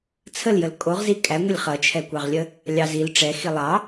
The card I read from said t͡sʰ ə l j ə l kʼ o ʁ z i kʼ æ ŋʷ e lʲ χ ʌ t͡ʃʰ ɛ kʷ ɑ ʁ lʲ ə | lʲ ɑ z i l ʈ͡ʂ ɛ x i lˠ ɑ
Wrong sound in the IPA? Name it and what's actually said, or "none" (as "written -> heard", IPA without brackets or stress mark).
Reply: none